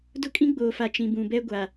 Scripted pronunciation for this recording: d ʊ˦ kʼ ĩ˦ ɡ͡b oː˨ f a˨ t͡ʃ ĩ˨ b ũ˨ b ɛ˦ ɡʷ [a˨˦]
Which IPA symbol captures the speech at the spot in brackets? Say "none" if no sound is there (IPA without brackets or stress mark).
a˨